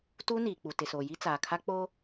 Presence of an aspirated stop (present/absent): present